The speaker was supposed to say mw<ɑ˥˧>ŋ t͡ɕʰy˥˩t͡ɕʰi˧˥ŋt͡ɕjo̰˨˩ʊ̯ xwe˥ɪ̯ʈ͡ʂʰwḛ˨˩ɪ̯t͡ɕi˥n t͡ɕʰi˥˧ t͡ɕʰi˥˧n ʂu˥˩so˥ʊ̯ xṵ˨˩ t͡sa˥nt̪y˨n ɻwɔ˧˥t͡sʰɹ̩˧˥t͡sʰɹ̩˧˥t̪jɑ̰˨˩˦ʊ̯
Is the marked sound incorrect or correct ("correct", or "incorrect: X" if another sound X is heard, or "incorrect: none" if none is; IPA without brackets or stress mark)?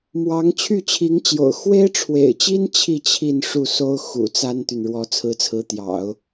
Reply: incorrect: ɑ˧˥